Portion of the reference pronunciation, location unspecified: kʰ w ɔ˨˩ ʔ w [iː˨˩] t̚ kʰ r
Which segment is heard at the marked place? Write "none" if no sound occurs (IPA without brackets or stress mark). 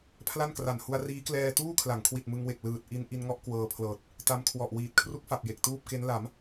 iː˨˩